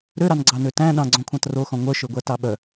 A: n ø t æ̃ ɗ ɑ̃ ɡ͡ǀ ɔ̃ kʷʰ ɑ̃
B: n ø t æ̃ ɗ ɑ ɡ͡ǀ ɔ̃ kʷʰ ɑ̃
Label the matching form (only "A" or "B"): A